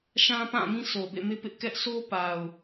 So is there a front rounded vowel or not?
no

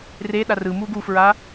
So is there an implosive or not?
yes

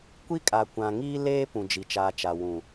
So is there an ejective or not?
yes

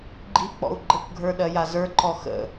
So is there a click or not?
yes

